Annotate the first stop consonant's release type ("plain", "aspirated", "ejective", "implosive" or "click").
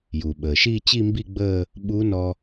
implosive